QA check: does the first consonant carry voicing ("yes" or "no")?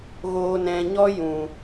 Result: yes